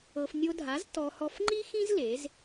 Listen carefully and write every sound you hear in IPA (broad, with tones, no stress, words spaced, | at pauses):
ɤ˧f nʲo˧dʱa˩˥z tɔ˧ hɔ˧fŋ͡ǃi˥xĩ˥z le˩˥z